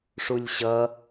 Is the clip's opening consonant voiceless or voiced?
voiceless